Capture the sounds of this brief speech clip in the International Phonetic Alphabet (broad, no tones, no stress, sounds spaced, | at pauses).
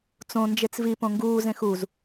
t͡s õ n d͡ʒ e t͡s v i p õ ŋ ɡ uː z ẽ x u z